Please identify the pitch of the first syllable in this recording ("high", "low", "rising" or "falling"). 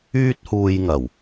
high